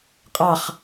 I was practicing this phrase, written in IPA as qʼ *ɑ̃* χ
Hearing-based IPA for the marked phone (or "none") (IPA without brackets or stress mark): ɑ